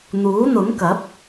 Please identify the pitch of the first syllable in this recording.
rising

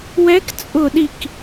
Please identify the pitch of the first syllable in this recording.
rising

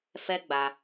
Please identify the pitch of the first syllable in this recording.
high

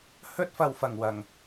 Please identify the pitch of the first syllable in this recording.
high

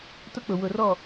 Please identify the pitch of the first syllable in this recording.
high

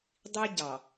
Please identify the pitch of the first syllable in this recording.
high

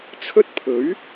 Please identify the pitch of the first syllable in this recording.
high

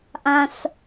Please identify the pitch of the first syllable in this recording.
high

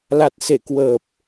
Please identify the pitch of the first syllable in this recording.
low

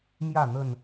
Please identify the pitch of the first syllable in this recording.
falling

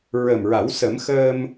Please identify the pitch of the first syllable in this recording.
low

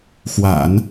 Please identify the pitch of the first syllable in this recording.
low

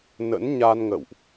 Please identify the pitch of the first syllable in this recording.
rising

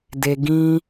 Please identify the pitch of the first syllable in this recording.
high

